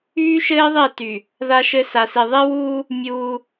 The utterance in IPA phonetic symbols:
yː˦ʃɘː˦ðˤe˦˨ty˨ | ða˦ʃɘ˦ sa˨si˨ ðˤe˦wuː˦ | mʲuː˦

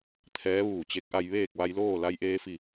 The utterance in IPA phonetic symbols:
t̪ʰɛː˧˥ʋuː˧˩t͡ɕe˧˥k̚ʔa˧j ʋeː˥˨k̚ʋa˧jloː˥˨ la˧j ʔeː˧fi˧˩

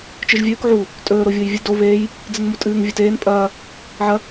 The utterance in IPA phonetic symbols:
t͡ʃɨʒvʲɵːk ʕu | tʼɵː ɾovʲojvʲɨ do βeːj | d͡zɨnmutʼɨːŋ vʲɵteːn pʼɐː | ʕɐ

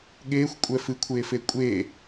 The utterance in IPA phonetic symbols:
ɠeːxʷ kʷʼɛfɨkʷʰeːfe kʷʼe

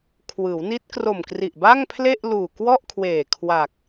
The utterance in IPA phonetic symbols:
kʰwɯː˩˦wni˦˥t̚kro˨˩mkri˨˩ʔ ba˥˩ŋpʰle˥˩ʔluː˨˩ kwɔ˥˩ʔkʰweː˨˩ kʰwa˨˩k̚

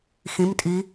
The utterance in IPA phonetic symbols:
xĩmtʼi

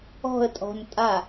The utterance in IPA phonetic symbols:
ɔ̤ə̯tʼɔ̤n tʼa

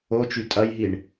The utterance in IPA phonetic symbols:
ot͡ʃy tʼɐjɦiɳ

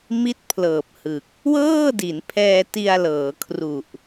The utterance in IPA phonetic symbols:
mi˥˩t̚pʰlɤː˨˩p̚hɯ˨˩k̚ | wɤː˥˩di˩˦npʰɛː˧ti˧a̯ lɤː˩˦kʰru˨˩ʔ

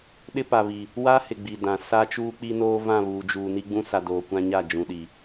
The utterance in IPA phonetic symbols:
ɗɪ˦pa˨βi˨ | wa˦hɪ˨ ɡ͡bi˨dã˨ sa˦t͡ʃuː˦k͡pi˦noː˦ vã˦˨βuː˨d͡ʒuː˨ ni˦ɡ͡bũ˦ sa˨ doː˨ kʷã˦ɲa˦˨ d͡ʒũ˨ɗi˨

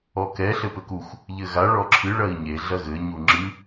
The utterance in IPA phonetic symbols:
ɔkɛ ɬɘpɘkuxʷ | ʎɘɣa ɭɔǁʰɨ ɭɐi̯ɲe ɮɐɣɘ ɲuŋ͡ǁɨ

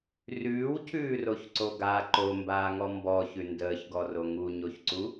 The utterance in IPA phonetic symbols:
rʉːwcʰʉːroçǀo ɡa ǃombaːŋɔ mbɔçʉ ndəːçɡɔro ŋuɲoçǀu

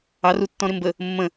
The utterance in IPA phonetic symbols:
ɑrutːɔ̃ ɾɪmbə | mːə̃

